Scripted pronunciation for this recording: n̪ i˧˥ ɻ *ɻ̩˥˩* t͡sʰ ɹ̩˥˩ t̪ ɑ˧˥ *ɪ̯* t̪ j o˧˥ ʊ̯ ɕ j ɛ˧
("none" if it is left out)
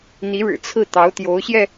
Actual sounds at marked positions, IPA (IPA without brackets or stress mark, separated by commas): ɻ̩˨˩, ʊ̯